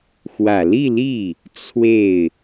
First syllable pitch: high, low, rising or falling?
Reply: low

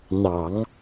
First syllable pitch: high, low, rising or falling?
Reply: low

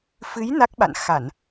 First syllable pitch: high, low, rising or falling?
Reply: rising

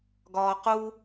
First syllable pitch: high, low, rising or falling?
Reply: low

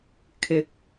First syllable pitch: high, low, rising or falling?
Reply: rising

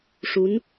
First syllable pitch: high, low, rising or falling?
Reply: rising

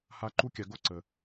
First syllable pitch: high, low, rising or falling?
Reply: high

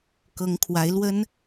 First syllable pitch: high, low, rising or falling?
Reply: rising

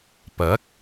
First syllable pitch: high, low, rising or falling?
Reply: rising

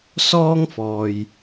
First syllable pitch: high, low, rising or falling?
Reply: high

